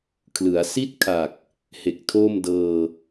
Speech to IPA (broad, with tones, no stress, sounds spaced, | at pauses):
kʰ l ɯ˩˦ a̯ s i˥˩ t̚ kʰ a˨˩ k̚ | h e˨˩ k̚ tʰ oː˥˩ m d ɤː˧